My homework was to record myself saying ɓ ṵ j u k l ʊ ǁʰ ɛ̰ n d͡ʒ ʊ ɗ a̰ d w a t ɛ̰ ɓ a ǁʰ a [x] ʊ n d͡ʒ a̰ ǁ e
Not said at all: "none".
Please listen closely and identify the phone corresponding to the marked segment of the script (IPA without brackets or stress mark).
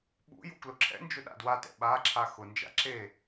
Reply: x